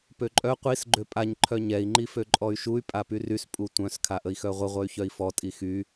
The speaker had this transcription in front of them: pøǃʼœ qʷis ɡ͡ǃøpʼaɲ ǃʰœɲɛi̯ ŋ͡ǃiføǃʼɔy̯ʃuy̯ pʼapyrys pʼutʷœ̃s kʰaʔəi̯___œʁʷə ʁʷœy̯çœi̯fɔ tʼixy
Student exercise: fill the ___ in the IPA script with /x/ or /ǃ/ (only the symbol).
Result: x